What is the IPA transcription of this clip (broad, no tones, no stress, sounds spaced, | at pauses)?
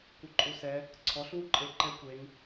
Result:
kʷ ɯ ǃʼ u s ɛ | ǀʰ ɔ ɬ w u ǃʼ e ǃ ɛ kʷ e ŋ